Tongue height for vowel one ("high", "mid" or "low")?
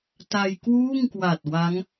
low